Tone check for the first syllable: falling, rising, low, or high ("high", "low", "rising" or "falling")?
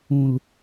low